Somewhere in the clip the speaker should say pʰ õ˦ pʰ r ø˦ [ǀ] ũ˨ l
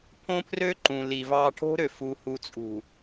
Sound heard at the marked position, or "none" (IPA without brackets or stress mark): ǃ